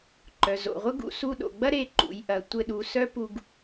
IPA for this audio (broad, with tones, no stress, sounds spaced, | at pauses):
ǃ œ˩ z o̰˩ ʁʷ ɘ˥ ɡ ṵ˧ s u˧ ɗ o̰˩ ɡ͡b ɐ˥ ɾ e˧˥ ǃ ṵ˩˧ j ʔ ɐ˩˧ tʷ ɘ˧ ɗ u˩˧ s œ˥ p u˧ ɡ